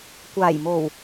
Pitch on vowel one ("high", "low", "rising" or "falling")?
low